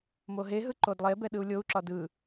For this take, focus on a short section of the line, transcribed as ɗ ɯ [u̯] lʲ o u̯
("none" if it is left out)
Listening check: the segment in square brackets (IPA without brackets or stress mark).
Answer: u̯